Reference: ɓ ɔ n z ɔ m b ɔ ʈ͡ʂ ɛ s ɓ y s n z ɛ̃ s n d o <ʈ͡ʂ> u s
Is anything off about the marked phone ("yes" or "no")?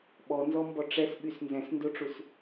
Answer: no